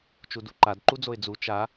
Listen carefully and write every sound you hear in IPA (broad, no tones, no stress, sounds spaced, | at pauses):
t͡ʃ u d u ǃ a d ǃ u d͡z o ɪ̯ d͡z u t͡ʃ a